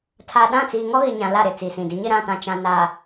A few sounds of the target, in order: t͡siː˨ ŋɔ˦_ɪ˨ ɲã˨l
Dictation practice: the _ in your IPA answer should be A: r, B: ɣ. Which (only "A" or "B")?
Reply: B